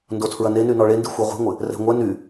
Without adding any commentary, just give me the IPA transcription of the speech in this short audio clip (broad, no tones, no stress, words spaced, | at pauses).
ndotʰɹɐneny nɔɭendi xʷɛʁʷi̤ŋʷɪ | rɛ̤ŋʷɛ ny